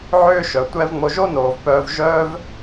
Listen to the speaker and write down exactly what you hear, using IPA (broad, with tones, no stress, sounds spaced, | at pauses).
ʕ ʏː˦ ʃ œ˨ tʷ ɛ˦ v ŋ͡m o˧ ʒ o˦ n oː˨ v p œː˧ v ʒ œː˦ v